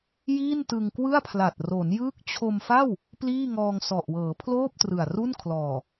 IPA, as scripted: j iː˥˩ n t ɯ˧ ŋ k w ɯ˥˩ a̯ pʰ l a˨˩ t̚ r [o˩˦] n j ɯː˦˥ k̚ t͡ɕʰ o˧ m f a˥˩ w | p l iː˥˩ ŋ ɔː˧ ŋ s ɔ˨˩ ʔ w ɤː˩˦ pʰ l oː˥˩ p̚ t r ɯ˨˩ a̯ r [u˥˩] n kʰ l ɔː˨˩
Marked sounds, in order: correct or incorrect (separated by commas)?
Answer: correct, correct